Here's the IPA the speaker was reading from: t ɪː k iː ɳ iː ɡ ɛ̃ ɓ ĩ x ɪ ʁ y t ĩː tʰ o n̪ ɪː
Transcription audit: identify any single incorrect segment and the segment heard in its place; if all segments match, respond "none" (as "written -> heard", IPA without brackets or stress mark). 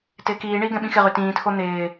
none